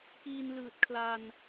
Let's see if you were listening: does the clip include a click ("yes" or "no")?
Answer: no